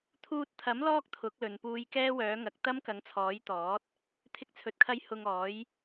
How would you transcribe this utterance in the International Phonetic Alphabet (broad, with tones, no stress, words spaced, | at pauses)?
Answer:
t̪ʰuː˧t̚t̪ʰɐ˨˥m lɔː˥k̚t̪ʰʊ˨˥k̚lɵ˨npuː˧j kɛː˥wœː˨˥ŋɐ˨˥k̚ t̪ɐ˥mkɐ˨˥ŋt͡sʰɔː˨˥jt̪ɔː˨˥t̚ | t̪ʰɪ˧k̚t͡sʰɵ˨t̚kʰɐ˧j hʊ˧ŋɔː˨˥j